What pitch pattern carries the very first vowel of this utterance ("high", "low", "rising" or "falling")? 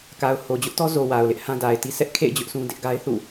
low